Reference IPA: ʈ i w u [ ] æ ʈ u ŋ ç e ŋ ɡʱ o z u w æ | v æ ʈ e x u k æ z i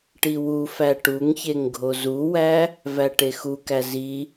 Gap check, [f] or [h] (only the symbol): f